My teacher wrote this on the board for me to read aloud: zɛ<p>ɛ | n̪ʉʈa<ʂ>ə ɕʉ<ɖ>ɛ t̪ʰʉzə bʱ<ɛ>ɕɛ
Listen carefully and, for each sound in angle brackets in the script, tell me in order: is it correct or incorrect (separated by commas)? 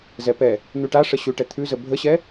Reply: correct, correct, incorrect, incorrect